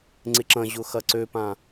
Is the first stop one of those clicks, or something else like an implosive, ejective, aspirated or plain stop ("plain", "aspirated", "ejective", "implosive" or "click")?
click